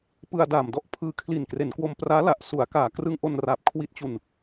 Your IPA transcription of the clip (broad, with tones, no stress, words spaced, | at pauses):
pɯ˧a̯daː˨˩mdɔ˥˩ʔ pʰɯː˧kʰli˨˩nkre˩˦nkwo˧m praː˦˥la˨˩ʔsu˩˦a̯ kaː˨˩ krɯ˧ŋʔo˧n ra˨˩p̚kʰwi˦˥t̚t͡ɕu˧n